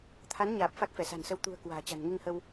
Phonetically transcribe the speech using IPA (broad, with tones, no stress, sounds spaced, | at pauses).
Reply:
t̪ʰ a˨˦ n ɲ aː˨˩ p̚ f a˦˥ k̚ f ɛ˧˩ s a̤˨˩ n s ə˧ w t̪ ṳ˨˩ ə̯ k w a̤ː˨˩ t͡ɕ a̤˨˩ n ŋ i˧ ŋ h ə˧ w